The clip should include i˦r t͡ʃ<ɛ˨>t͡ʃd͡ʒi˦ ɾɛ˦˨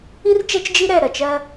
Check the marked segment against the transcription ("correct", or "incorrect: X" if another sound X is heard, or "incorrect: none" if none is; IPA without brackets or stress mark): incorrect: ɛ˦